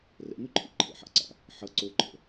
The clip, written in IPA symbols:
rɛ̰n̪ʉǃʰḭ ǃʰə̰ħa̰ǀa̰ | ħʌ ǀoǃʰə̰

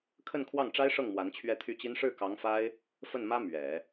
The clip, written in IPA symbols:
kʰə˥˧nkʰwɑ˥˩ŋʈ͡ʂa˥ɪ̯ʂɤ˥˩ŋ mwa˧˥nt͡ɕʰɥɛ˥˧t̪ʰy˥˩t͡ɕi˥n ʂɻ̩˥˩kɑ˧˥ŋfa˥ɪ̯ | fə˥˩nmä˥ mɥɛ˨˩˦

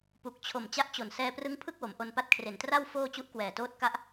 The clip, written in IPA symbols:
pu˨˩k̚t͡ɕʰo˨˩m t͡ɕa˦˥ʔt͡ɕo˨˩n sɛː˧prɯ˦˥ŋpʰɯ˥˩k̚ wo˩˦mʔo˧npa˦˥t̚ kʰre˨˩ntra˥˩w foː˥˩ t͡ɕu˦˥ʔkwɛː˨˩toː˥˩t̚ka˦˥ʔ

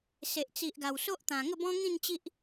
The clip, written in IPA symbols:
se˨ʔ t͡si˨ʔɡa˨˩w so˦ʔt̪ã˨˩ ŋə˥˧bɔ̃˦ŋĩ˥˧nt͡ɕi˦ʔ

